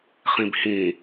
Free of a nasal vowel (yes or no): no